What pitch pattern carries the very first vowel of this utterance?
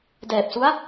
low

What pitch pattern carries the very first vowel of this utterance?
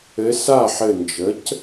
rising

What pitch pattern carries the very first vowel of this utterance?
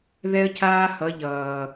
high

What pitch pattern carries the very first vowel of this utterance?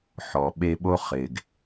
low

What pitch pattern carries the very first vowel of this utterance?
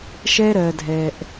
high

